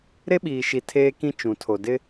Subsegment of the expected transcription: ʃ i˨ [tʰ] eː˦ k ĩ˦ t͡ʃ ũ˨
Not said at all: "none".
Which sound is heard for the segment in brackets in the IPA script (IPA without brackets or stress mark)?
tʰ